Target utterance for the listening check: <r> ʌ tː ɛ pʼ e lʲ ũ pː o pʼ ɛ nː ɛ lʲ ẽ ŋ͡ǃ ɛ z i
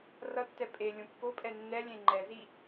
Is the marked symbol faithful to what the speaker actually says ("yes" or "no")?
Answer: yes